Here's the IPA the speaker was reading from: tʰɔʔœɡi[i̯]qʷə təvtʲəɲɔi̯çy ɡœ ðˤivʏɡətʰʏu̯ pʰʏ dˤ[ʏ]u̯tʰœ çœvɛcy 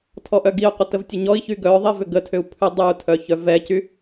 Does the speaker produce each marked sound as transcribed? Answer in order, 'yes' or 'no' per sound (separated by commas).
no, no